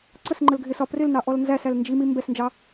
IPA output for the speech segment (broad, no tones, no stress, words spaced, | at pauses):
ǀəs ŋ͡ǃəlɡʱɪsɒ prɪlnɑ ʔɔlnzæsæl nd͡ʒimi mbɛsnd͡ʒɑ